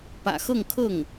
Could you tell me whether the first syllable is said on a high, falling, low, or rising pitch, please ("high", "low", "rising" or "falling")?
low